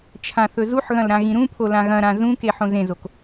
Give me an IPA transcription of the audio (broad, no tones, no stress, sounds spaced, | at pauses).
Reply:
t͡ʃʰ ã θ ɵ z u ħ ɣ ɐ̃ l ɾ ã ɣ ĩ ɾ ũ pʰ o l ã ɣ ɐ̃ ɾ ã z ũ k e ħ õ z ẽ z o k